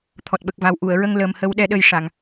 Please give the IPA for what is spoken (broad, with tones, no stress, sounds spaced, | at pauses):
t̪ʰ ɔ˨˩ t̚ ɓ ə˨˩ k̚ v a˨˩ w ʔ u˨˩˨ ə̯ ɹ ə˧ ŋ l ə˨˩ m h ə˧˥ w ɗ ɛ˧˥ ɗ ə˧ j ʂ a˨˩˨ ŋ